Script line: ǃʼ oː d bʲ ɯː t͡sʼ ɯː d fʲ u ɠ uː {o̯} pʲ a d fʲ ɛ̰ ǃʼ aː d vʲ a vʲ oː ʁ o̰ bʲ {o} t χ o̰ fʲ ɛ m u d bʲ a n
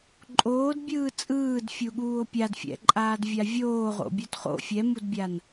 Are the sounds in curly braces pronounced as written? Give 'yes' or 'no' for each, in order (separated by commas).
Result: yes, yes